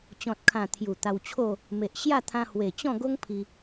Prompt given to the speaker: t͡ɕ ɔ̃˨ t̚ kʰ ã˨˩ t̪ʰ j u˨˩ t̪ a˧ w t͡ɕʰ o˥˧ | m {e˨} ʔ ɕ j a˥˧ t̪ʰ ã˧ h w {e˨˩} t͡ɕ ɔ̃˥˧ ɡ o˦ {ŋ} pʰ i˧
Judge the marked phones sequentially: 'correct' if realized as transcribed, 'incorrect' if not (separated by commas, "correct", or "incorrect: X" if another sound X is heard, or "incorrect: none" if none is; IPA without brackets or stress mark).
correct, correct, correct